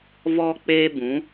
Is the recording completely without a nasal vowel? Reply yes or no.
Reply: no